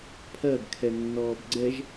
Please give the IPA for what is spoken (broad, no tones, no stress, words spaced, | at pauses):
pʰɜɡkʰɛnːɔːb ɡ͡ǀɛʒ